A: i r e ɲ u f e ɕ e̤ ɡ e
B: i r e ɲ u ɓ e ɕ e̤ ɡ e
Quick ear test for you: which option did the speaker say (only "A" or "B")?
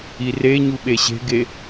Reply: B